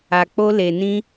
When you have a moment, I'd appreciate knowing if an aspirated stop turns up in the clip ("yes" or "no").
no